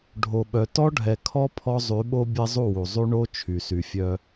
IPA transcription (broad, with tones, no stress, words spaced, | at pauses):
ɖʱo˨ɓœ˨ tɔ˦ɖʱɛ˨kʰɔ˦ pʰɔ˦zˤy˨˦ɓo˦ bʲɛ˦zˤu˦˨wu˨ zˤy˦ ɳo˦ t͡ʃʰy˨ sy˨fʲœ˦